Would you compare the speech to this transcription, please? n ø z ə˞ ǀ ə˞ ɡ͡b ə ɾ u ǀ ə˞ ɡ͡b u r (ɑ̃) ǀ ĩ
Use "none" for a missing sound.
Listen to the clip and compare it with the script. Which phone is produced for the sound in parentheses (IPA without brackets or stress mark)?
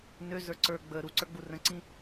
ə̃